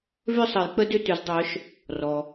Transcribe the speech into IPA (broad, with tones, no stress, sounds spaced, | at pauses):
v ʏ˥˨ sˤ ə˨˩˦ j k͡p ə˦ d ʏ˥˨ t ʏ˨˥ z dˤ œ˨˥ ʃ | r ɔ˩